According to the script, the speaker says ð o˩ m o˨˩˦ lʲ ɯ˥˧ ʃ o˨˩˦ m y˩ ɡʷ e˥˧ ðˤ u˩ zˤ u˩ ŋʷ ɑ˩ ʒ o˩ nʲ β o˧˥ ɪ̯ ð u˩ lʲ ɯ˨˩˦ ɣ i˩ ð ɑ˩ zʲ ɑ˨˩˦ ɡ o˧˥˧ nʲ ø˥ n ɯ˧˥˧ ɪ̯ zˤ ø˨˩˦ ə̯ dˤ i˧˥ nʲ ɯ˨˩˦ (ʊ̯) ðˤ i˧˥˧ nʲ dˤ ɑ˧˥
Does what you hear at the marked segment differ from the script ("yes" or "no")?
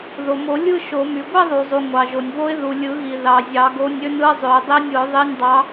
no